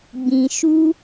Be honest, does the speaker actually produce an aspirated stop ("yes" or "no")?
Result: no